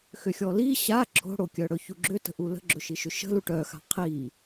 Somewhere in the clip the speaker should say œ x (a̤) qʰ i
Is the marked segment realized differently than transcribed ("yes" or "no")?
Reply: no